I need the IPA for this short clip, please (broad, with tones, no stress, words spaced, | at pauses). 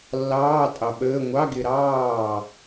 lːɑː˧˥˧tʼɑ˨ɓəː˧˥˧ ŋʷɑ˧˥˧ɡɪ˨ɾɑː˥˩